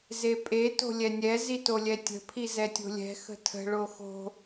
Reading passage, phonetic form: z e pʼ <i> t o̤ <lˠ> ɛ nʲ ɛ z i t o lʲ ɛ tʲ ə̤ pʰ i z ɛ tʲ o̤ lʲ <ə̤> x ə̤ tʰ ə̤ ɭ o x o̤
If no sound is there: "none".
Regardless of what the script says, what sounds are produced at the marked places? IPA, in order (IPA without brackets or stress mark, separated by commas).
e, lʲ, ɛ̤